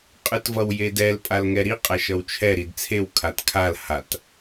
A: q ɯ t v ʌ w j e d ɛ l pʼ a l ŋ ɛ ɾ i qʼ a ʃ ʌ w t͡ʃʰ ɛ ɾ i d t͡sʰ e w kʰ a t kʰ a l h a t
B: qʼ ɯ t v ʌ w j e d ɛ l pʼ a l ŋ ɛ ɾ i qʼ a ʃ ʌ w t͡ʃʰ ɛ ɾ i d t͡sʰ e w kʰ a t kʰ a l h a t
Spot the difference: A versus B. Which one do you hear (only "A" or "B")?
B